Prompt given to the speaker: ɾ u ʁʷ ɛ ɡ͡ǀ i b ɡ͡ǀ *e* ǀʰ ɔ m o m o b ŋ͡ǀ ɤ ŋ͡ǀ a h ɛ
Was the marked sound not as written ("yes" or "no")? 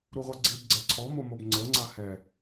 yes